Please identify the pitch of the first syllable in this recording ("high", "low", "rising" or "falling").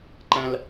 high